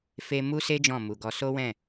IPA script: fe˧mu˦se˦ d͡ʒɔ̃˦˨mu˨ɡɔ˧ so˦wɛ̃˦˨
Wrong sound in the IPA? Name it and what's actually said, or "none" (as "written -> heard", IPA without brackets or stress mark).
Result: none